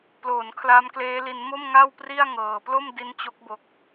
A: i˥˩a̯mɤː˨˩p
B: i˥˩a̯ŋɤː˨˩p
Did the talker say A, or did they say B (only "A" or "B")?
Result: B